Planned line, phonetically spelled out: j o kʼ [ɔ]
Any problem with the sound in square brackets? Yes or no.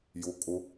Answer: yes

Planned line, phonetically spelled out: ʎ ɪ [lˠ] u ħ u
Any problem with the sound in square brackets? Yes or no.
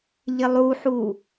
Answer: no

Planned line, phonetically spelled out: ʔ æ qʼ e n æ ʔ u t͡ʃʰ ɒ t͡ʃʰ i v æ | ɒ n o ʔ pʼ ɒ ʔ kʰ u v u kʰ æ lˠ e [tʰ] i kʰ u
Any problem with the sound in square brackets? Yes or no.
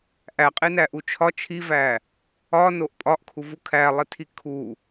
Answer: no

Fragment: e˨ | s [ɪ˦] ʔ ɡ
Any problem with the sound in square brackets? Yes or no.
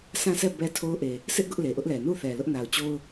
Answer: no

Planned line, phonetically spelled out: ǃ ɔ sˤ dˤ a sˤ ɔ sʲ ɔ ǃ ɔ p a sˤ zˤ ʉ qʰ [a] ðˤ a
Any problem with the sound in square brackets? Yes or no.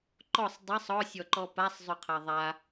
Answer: yes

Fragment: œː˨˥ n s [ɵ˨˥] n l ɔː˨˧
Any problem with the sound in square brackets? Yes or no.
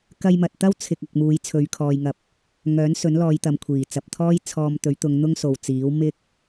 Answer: no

